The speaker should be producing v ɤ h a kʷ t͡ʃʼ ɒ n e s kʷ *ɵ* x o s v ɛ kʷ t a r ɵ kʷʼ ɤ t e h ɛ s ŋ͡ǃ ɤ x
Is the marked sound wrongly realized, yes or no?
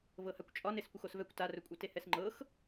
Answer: yes